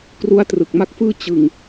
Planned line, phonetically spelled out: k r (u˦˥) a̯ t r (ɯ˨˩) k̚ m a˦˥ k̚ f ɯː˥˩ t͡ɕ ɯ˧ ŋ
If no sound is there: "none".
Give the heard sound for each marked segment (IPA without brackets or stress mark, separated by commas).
u˦˥, ɯ˨˩